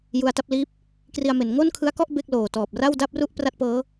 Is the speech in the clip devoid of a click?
yes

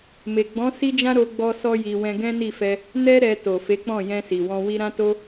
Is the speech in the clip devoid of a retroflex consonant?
yes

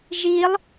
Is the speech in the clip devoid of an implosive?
yes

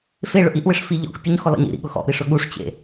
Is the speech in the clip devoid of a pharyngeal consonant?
yes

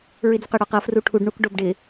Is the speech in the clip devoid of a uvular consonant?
no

